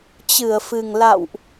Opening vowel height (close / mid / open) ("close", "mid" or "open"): close